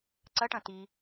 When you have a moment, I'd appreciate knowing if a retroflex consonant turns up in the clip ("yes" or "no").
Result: yes